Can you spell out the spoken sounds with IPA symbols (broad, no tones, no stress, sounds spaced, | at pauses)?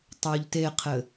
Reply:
tˤ ʉ ʎ t e qʰ ɘ